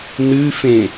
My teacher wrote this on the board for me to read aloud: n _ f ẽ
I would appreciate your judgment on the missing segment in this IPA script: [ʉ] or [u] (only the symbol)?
ʉ